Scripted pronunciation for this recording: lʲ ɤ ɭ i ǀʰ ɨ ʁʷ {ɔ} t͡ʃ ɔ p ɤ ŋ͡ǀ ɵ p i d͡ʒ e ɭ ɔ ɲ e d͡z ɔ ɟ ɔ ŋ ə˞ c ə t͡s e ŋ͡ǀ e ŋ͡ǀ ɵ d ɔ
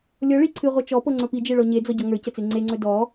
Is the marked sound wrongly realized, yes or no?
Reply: yes